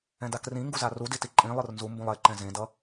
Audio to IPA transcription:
ɛ̃ d a k r ĩ ŋ ɡ u z a r u d i t i ǃʼ ĩ lˠ ɯ r n z u m b ũ lˠ e ǃ ɛ̃ z ẽ d ʌ

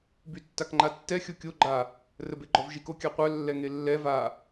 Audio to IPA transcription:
b y tː a k ŋ͡ǃ a tː ɛ xʲ o kʲ o ɡ͡ǃ a | r ə b e ɡ͡ǃ ɔ v ʒ i k o kʲ a qʷ œ lː ɛ ŋ e lː ɛ v a

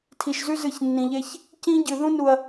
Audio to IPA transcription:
tʰ i˨ ʃ z ʉ˦ z ɨ˧ ç nː ĩ˨ ʎ e˧ ç | c ĩ˦ ɟ ɨ˨ ð ũ˧ n u˨ ɐ̯

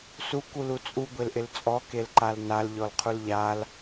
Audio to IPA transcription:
s u k u l u t͡sʼ u ɡʷ e l ʔ ɪ l t͡sʼ ɔ k e l ǃ a l n a l ʎ ɔ l qʰ u l ʎ a l

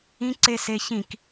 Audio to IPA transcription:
ĩ ǀ e s e ç ĩ k

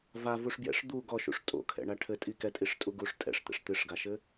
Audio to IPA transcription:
v a v u ʂ b j ɛ̰ ʂ d̪ u ɡ ɔ ʃ ṵ ʂ tʼ o̰ kʰ ɛ̰ ɳ a ʈʰ ɘ tʼ i k ɛ tʼ i ʂ tʼ u ɡ u ʂ tʼ ɛ̰ ʂ t̪ ɛ̰ ʂ t̪ ɨ ʂ ɡ a ʃ ɘ

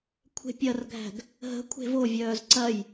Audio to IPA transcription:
kʷʰ e̤ pʲ ɐ r ɡʱ æ̤ ɡ | ɦ ə̤ kʷʰ e̤ v o vʲ œː z ǀ ɐ j

